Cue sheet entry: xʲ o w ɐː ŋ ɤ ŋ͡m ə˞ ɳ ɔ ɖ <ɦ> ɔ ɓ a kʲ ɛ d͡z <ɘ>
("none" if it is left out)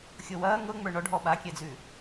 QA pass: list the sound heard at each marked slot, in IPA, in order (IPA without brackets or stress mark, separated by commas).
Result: ɦ, ʉ